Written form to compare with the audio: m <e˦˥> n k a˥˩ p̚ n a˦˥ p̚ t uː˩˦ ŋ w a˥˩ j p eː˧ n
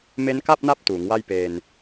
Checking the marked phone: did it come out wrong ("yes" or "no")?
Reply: no